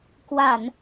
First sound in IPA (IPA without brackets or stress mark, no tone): k